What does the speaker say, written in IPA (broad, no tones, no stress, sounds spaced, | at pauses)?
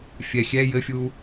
fʲ ɛ xʲ ɛ j ɘ fʲ u